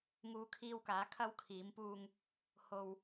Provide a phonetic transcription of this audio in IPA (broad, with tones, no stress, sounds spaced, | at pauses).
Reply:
ŋ uː˧ kʰ iː˧ w k aː˨˧ kʰ ɐ˧ w kʰ iː˨˧ m p uː˧ ŋ | h o˧ w